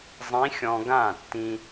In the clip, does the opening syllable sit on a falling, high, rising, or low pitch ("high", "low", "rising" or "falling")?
rising